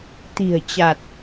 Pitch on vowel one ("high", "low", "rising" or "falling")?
low